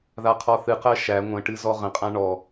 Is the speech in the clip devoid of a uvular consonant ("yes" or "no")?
no